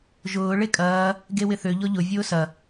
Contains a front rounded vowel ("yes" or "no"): yes